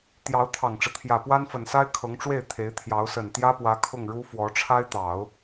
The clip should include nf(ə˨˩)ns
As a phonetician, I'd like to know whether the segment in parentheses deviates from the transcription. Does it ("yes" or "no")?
no